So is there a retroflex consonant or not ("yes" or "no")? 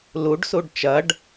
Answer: yes